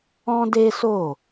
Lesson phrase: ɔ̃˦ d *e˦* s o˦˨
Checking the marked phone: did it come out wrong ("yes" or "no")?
no